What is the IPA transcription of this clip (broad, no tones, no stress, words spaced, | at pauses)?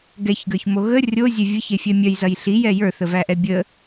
ɡɛçɡə˞çmo ɣə rʲozʲɛ vʲəçefʲɛ mʲœjzɐj ɬijɛ jə˞θəvæʔɛ bʲə